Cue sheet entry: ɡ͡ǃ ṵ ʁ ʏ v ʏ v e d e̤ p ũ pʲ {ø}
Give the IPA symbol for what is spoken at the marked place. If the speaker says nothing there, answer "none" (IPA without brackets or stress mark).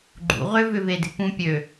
ø